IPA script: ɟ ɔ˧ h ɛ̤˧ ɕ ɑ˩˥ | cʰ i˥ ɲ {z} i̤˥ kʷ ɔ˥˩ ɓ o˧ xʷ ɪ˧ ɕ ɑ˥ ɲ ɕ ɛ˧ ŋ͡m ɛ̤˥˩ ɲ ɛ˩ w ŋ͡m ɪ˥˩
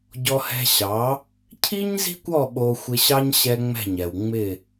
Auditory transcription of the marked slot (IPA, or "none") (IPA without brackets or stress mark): z